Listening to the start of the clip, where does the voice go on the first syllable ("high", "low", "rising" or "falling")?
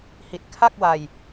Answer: low